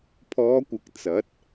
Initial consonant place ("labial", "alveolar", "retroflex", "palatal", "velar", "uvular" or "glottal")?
labial